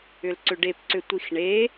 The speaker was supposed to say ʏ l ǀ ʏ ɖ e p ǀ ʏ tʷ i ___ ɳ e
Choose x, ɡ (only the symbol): x